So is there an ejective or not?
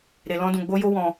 no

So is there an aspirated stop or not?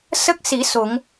no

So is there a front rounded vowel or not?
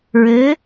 yes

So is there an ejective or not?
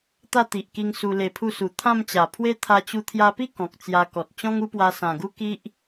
no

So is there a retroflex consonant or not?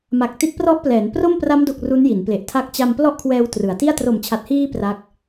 no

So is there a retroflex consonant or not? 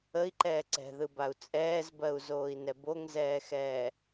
no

